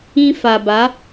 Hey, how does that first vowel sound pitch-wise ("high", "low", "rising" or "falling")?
high